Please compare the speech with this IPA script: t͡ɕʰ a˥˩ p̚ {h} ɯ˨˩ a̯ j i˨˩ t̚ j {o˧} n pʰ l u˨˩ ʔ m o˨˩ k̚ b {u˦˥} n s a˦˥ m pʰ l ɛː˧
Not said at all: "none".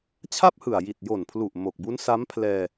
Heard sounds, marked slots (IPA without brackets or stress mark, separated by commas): h, o˨˩, u˦˥